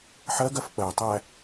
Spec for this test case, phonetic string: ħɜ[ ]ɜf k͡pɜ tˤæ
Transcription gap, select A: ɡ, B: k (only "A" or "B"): A